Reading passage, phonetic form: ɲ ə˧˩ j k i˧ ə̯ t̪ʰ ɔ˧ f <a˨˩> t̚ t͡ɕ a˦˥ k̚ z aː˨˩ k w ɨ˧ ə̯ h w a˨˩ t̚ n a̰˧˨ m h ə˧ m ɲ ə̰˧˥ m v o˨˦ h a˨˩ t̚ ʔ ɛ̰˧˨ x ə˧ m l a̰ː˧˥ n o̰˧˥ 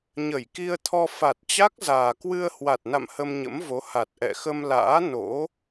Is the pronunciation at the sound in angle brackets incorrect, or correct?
correct